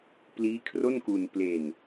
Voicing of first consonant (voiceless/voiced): voiceless